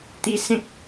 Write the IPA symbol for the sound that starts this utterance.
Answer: t̪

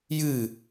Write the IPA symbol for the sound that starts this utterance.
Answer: j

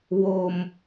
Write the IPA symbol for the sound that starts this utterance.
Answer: w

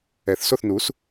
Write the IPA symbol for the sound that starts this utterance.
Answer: ɛ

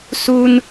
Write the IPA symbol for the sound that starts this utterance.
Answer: s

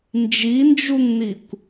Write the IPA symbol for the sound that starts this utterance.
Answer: n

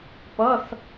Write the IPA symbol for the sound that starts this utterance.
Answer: p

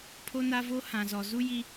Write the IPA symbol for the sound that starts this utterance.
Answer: pʰ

